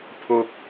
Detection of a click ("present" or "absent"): absent